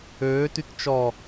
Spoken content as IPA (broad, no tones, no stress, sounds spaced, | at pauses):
øː t y t t͡ʃ ɔ